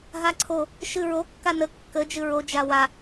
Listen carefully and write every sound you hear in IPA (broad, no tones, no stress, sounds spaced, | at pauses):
ɦ a ǀʰ o | ʃ ɨ ɹ o kː a n ə kː ə d͡ʒ ɨ ɹ o d͡ʒ a w a